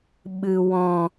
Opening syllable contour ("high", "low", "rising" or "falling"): low